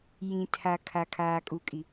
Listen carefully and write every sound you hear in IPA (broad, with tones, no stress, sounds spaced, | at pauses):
j ĩ˨ tʰ a˨ kʰ a˨ kʰ aː˨ kʼ u˨ kʼ i˨